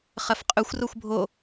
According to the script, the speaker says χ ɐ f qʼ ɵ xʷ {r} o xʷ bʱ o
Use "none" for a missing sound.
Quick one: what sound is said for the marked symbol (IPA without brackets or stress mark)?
r